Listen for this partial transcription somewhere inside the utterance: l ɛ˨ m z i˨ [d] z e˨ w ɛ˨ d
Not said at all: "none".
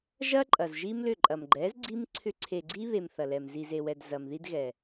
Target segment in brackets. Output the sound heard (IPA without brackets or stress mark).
none